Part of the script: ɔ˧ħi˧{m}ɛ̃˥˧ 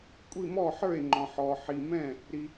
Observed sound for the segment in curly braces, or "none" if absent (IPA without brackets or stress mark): m